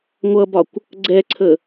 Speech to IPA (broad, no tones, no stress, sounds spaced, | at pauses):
ŋʷ ʌ b ɒ kʷ | ɡ͡ǀ ɛ ǀʰ ə